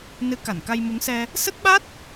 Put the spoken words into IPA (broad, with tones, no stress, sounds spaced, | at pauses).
n ɨ˨˦ k a˧˩ n k a˧ j m u˨˦ ŋ s ɛ˧ | s ə˦˥ t̚ ɓ a˦˥ t̚